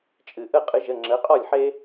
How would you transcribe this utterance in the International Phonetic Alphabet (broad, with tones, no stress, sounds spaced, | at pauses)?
t͡ʃʼ ɨ˩ ʔ ə˥˩ qʼ ɨ˩˥ ʒ ə˩˧˩ ŋ͡ǁ ə˩˥ qʼ ɔ˥˩ lʲ ħ e˦